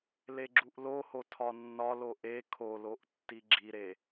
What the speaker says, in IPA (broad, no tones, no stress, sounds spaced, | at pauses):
l e ɡ͡ǁ u ʔ l o h o tʰ ɒ nː ɒ l o ʔ e kʰ o l o ʔ tː i ɡ͡ǁ i ɾ e